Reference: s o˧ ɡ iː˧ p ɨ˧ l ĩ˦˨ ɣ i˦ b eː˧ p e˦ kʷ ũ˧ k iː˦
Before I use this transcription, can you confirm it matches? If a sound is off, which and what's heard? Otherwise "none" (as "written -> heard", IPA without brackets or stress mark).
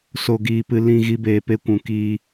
none